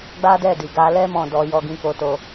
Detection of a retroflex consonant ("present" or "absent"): absent